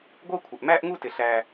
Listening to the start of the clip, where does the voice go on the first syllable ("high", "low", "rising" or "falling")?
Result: high